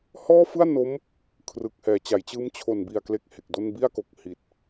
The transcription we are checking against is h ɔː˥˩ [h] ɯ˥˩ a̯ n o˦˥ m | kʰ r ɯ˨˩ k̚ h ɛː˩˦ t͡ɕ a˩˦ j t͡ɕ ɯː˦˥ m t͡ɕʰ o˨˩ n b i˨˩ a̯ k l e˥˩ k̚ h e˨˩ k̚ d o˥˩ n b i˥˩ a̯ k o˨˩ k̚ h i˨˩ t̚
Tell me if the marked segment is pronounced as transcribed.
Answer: no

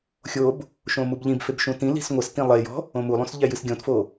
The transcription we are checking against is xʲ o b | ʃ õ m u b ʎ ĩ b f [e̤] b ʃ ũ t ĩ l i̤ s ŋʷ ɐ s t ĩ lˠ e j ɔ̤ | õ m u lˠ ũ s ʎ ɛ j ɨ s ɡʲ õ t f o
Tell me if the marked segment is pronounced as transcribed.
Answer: no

